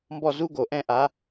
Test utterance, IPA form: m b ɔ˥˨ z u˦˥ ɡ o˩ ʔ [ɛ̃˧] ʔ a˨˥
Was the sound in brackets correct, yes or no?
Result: yes